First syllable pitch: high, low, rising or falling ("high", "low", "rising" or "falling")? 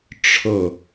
falling